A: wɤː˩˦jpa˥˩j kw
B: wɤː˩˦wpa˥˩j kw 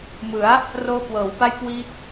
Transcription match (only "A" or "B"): B